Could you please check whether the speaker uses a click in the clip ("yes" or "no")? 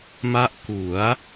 no